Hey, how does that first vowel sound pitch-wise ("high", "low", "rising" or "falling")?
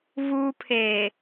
high